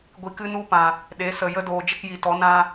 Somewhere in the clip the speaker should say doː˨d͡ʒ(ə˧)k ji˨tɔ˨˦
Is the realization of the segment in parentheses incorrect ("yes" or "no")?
no